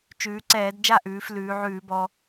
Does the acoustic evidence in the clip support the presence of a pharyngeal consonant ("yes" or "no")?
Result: yes